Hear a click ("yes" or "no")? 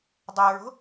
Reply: no